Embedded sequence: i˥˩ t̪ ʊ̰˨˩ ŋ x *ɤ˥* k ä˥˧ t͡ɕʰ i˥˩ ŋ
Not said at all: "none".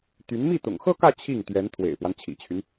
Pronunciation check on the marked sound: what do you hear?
ɤ˥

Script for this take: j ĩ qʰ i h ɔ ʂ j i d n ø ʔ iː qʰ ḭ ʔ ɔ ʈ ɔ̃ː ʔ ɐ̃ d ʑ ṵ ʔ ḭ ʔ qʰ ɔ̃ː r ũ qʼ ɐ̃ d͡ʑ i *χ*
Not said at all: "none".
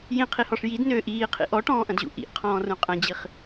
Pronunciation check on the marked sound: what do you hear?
χ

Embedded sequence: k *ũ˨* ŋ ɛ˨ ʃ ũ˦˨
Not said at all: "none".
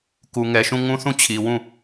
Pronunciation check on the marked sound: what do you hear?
u˨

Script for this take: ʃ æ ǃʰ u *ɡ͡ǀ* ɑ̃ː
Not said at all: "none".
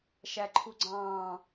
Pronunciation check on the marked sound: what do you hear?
ɡ͡ǀ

